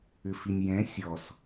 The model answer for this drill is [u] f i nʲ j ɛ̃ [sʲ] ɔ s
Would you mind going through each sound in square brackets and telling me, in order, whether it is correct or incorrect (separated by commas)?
incorrect, correct